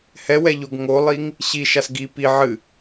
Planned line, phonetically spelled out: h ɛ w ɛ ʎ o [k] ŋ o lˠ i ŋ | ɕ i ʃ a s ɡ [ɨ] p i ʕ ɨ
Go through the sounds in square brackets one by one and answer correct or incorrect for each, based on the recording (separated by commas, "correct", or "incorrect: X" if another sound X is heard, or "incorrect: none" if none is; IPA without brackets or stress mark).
incorrect: ɡ, incorrect: i